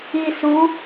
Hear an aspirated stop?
no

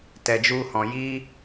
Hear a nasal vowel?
yes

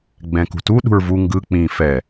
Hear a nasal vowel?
yes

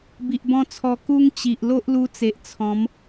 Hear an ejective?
no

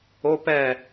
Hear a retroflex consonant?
no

